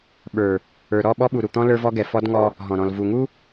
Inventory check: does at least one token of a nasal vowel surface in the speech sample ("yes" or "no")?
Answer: yes